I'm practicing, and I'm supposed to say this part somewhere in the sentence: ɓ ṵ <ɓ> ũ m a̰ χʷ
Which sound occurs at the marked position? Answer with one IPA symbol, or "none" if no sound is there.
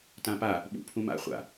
pʰ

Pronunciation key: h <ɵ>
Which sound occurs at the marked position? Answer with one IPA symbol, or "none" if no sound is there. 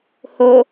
o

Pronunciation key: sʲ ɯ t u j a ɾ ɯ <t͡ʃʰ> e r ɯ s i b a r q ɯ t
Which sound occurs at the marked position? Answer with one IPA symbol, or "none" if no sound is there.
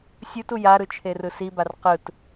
t͡ʃʰ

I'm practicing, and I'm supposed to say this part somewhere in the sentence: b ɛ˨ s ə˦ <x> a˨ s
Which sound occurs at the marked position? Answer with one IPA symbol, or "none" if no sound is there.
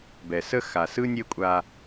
x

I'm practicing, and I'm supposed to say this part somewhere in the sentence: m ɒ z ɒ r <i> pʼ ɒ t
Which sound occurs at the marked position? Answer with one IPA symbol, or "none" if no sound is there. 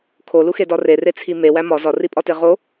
i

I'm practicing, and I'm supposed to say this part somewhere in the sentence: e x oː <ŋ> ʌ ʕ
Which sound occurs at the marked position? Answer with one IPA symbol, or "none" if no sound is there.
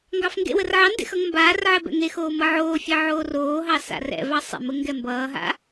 m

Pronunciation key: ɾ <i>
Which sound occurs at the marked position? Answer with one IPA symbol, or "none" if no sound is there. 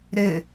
ɪ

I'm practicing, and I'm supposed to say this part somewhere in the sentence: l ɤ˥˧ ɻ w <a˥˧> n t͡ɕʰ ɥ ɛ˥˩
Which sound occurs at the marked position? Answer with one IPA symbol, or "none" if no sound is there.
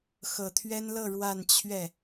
a˥˧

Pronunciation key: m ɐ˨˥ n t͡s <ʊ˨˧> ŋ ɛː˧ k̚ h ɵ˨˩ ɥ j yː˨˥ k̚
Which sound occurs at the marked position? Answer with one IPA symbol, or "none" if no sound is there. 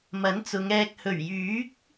ʊ˨˧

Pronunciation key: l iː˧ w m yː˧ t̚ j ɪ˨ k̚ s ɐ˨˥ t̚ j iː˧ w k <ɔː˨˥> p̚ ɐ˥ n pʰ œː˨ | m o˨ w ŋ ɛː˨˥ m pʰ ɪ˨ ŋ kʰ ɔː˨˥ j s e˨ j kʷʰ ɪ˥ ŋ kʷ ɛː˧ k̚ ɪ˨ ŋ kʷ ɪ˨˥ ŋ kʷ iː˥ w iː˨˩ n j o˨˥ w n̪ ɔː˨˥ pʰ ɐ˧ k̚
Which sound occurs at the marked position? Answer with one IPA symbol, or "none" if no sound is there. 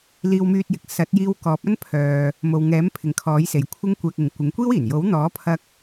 ɔː˨˥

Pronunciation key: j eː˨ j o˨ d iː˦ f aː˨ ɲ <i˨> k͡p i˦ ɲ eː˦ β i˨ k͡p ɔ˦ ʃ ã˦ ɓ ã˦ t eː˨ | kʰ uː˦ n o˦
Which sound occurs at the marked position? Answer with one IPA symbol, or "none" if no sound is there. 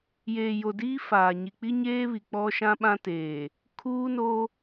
i˨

